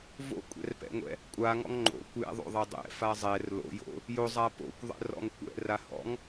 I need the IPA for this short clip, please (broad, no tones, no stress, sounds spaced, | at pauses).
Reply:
v o̰ kʷʼ ɛ̰ r p ɛ̰ ŋʷ ɛ̰ | kʷʼ a ŋ ɔ̰ ŋ ŋ͡ǃ o̰ kʷ j ɛ̰ ðˤ o̰ ðˤ ɛ dˤ ɛ̰ f a zˤ ɛ r l o̰ j o̰ | j o zˤ a p o̰ kʷ ðˤ ɛ̰ r ɔ̰ ŋ kʷ ɛ̰ r a h ɔ̰ ŋ